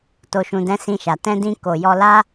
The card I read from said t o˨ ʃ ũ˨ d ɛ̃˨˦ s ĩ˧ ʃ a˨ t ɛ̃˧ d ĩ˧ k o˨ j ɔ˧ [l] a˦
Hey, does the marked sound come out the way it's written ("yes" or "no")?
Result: yes